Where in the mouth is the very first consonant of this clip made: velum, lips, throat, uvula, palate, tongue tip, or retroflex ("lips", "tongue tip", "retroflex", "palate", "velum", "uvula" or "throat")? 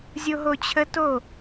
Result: tongue tip